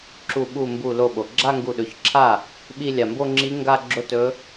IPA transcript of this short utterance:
ǁu˧˩ɓu˧˩ mbu˧˩lo˧˩ɓo˩ ɡ͡ǁa˥˧ŋɡu˧˩ɗɵ˩˥çǁʰa˥˩ | ɓi˥˧lʲa˧˩ mbo˥˧ŋ͡ǁi˧˥ ŋɡa˥˧ɡ͡ǁo˥˧tɵ˧˥

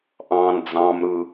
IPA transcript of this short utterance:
ʔɑ̃n d͡zɑ̃mɾɯ

